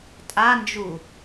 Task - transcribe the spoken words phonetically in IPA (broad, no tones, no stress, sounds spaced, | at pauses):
tʼ a n d͡ʒ u